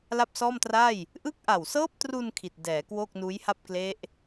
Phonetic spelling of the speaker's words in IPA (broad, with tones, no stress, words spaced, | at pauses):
la˥˩p̚sɔː˥˩mtra˥˩j | ʔɯ˦˥k̚ʔa˨˩wsɤː˦˥p̚tru˧n kʰi˨˩t̚dɛː˩˦ kwoː˥˩k̚nuː˦˥jha˥˩p̚ kle˦˥ʔ